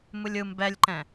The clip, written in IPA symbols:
mɯlʲɯm bɛlʲǃɛ̃

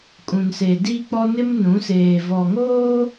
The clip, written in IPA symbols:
kʼũ˨nse˨diː˦k͡pɔ˦ nɪ˦mnũ˨˦seː˨ vɔ˨ŋoː˦

